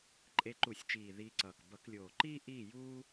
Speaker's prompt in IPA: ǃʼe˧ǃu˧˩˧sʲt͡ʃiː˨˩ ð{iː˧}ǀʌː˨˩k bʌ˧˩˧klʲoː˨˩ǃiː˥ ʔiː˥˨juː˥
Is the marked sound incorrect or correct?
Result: correct